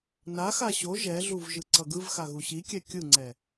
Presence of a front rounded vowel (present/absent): absent